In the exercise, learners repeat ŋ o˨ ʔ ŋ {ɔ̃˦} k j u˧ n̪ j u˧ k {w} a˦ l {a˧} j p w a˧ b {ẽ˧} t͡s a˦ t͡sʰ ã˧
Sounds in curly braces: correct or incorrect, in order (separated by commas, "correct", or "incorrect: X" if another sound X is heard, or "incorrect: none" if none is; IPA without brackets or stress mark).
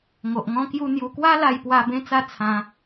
incorrect: ɔ̃˧, correct, correct, incorrect: ẽ˦